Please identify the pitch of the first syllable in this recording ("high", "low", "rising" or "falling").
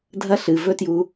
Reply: high